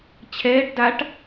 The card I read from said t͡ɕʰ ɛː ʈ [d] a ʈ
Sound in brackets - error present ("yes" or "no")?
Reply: no